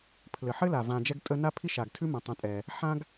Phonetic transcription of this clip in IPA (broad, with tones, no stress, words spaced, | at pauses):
pʰlɘ˩ħɘ˥la˩ vã˨d͡ʒɛ˦ɡtʼə˦na˥ pʰi˥ʃa˩ɡtʰʉ˥mə̃˩ tˤə̃˨tʼɛ˩ | ħã˦ɡ